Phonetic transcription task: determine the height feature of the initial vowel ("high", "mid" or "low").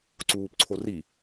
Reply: high